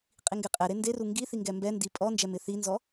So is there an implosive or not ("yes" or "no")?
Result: no